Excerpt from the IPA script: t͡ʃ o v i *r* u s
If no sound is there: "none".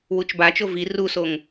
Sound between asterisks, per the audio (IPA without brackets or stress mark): r